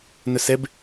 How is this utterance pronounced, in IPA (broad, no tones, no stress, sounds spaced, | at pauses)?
n œ s ɛ b